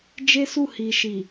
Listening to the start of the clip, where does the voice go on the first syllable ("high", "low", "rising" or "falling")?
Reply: high